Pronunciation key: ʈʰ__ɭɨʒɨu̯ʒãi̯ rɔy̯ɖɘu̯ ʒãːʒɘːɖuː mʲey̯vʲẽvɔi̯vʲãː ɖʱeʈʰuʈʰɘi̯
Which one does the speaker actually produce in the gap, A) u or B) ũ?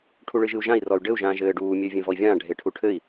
A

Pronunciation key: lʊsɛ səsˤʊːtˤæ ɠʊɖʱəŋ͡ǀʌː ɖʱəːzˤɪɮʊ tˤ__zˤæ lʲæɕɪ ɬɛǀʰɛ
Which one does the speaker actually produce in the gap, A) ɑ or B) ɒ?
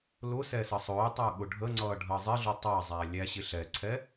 A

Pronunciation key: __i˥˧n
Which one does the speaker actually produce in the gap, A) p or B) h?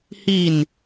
B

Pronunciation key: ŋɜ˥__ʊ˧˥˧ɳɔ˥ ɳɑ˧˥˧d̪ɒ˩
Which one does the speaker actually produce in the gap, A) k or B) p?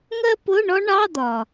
B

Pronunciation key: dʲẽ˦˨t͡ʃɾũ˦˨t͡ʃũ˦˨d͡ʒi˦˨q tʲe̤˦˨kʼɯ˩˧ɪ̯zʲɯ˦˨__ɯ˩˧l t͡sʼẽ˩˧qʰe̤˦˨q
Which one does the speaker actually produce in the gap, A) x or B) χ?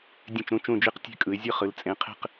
B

